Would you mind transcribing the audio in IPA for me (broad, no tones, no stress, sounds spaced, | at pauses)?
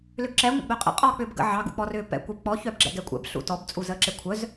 l ʏ ɡ ǁ ɛ ŋʷ ə̰ ɡ͡b œ qʼ ə̰ qʼ ɔː k͡p ʏː b ɡ ə̰ ʕ ɑ ɡ ṵ k͡p ɔ r ʏː p ɛ̰ kʷ ɛ b k͡p ɔ ç œ b ɡ͡ǁ ɛ̰ ɡ ɛ kʷʼ ɛ̰ b ɬ ṵ t ɔ b t͡sʼ u z əː ǁ e kʷʰ œ z